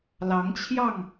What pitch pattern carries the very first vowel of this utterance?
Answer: rising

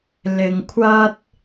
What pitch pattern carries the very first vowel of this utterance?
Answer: low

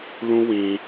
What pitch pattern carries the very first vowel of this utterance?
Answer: high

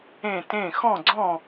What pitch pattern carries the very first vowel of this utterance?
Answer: falling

